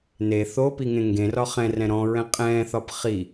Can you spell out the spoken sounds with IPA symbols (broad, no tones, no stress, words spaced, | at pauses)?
ne θopi ŋẽŋɡẽrɒ χɛ̃rɛ̃ ɾɔ̃ɹɛ̃ qʼɛ̃θɒp χi